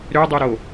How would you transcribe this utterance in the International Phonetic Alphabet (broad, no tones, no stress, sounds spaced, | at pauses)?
ɾ ø dˤ o ɾ o